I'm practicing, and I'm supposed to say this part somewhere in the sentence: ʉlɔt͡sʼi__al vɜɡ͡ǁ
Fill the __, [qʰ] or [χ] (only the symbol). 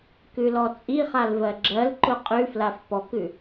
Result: χ